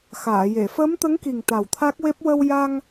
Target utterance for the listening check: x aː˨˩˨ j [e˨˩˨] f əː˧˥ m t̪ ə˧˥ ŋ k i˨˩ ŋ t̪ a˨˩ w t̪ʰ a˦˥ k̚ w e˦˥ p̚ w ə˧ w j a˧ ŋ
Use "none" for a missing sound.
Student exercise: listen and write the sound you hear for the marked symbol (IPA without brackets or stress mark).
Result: e˨˩˨